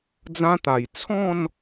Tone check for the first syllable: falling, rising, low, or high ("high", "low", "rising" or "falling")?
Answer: high